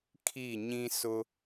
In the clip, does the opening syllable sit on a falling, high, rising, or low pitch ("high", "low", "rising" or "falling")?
falling